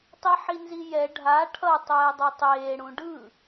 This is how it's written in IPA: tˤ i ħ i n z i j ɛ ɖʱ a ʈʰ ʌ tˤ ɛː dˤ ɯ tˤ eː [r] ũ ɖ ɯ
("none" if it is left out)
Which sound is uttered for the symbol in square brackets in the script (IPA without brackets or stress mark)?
ɽ